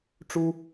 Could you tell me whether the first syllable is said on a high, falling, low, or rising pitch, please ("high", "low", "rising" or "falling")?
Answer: high